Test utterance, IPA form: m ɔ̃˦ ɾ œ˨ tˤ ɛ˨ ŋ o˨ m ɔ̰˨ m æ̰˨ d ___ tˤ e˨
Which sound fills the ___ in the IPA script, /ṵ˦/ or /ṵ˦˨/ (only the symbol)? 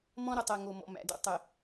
ṵ˦